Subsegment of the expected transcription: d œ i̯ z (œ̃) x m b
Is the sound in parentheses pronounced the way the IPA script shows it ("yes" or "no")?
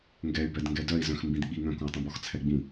yes